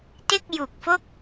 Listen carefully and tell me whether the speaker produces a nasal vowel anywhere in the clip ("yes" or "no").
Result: no